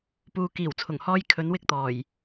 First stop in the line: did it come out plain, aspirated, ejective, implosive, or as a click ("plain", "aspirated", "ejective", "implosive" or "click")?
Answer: plain